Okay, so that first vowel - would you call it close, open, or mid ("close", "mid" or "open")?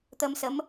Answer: mid